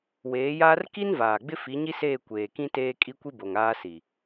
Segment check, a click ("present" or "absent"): absent